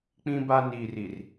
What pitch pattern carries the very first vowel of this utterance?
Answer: high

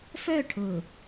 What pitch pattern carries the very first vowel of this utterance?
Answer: falling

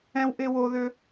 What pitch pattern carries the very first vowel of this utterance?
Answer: high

